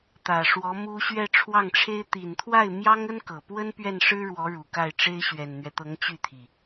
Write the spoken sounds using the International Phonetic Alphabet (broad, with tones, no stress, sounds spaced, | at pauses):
t̪ ä˨˩ ʂ w ɔ˧˥ m u˥ ɕ ɥ ɛ˥˧ ʈ͡ʂʰ w ɑ˥˩ ŋ ʈ͡ʂʰ e˥ ɪ̯ t̪ i˨˩ n t̪ʰ w a˥˩ ɪ̯ m j ɑ˥ ŋ ə˥ n k ɤ˨˩ p w ə˥ n p ɥ ɛ˥˩ n ʂ ɻ̩˥ ɻ w ɔ˧˥ ɻ u˨˩ k a˥˩ ɪ̯ ʈ͡ʂ e˥ ɪ̯ ɕ ɥ ɛ˨˩ n n̪ ɥ ɛ˦ t̪ ɤ˧˥ ŋ t͡ɕ y˥˩ t̪ʰ i˩